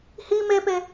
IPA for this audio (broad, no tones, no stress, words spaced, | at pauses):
hi mepe